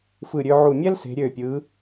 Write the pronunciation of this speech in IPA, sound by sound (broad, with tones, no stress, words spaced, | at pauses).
fɯ˧˩ɾʲø˧ʕu˧˩ mʲɛ˥lse̤˩˧ ɾʲø˧˩pʲɯ˩˧